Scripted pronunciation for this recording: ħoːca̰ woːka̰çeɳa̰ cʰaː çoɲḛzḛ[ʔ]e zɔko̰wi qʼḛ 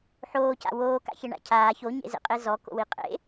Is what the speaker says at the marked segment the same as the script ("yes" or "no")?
no